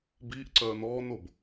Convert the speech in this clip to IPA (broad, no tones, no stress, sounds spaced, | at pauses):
b i ʔ ǀ œː n ɔː n o b